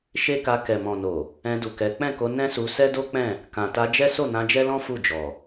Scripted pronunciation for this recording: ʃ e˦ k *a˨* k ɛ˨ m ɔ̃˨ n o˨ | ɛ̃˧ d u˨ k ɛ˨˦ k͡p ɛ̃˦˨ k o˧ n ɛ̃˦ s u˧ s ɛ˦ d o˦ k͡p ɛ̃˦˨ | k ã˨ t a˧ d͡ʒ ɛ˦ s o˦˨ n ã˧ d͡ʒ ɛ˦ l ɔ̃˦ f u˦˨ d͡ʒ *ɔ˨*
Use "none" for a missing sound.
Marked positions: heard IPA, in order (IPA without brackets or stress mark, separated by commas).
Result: a˧, ɔ˨